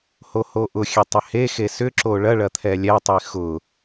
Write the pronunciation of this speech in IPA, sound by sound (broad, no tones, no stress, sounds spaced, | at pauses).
h o h o ʔ ʊ xʲ e tˤ ʏ h e x e s ʏ ǁ o ɭ ɐ ɭ ɐ t̪ʰ ɛ lʲ ɛ tˤ i x ʊ